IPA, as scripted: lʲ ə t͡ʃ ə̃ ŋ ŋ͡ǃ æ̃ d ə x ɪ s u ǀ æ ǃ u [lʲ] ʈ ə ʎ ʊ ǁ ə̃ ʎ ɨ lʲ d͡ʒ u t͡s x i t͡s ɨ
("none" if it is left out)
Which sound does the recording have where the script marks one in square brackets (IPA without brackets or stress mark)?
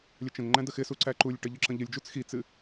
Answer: lʲ